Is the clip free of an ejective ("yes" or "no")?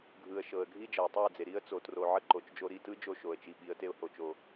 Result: yes